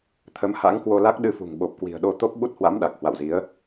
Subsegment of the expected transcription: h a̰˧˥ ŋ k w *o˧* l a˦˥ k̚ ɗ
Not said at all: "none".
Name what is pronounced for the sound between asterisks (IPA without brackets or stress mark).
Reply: o˧